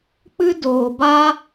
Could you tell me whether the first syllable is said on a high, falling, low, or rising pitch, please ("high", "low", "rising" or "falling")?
high